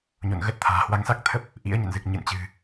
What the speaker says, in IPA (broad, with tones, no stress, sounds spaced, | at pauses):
ɲ o̰˧˨ n ɣ ə˦˥ t̚ t̪ʰ a̤ː˨˩ h w a˨˦ ŋ s a˦˥ k̚ t̪ʰ ə˦˥ p̚ | ʔ ḭ˧˥ ə̯ ɲ ə̰˧˨ n z ɨ˨˩ k̚ ɲ ɨ̰˧˨ n t͡ɕ ɨ̤˨˩